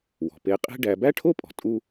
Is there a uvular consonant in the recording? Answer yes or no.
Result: yes